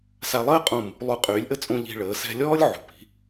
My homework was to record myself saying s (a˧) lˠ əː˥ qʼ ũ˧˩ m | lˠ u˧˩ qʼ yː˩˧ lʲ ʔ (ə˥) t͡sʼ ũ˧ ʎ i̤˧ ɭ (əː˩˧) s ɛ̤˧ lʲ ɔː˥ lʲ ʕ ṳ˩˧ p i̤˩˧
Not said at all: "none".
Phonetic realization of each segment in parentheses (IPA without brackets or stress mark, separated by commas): a˧, ə˥, əː˩˧